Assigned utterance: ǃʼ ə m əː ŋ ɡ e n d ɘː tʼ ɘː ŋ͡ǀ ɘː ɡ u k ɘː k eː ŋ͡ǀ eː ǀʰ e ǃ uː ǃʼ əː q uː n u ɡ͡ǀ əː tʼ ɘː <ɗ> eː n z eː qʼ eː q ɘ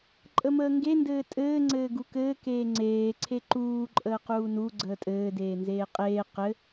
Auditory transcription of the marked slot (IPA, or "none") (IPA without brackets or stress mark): d